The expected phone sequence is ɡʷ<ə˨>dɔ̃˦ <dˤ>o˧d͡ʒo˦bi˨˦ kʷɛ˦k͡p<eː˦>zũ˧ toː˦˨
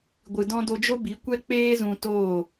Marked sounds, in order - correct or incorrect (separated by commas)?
incorrect, incorrect, correct